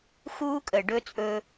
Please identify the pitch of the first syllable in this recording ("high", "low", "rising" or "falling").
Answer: high